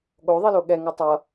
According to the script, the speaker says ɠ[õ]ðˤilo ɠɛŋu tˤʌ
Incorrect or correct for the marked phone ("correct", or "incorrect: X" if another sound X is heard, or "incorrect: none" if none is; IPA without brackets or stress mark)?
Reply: incorrect: o